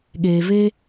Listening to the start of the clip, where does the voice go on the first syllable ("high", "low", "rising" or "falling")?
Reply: low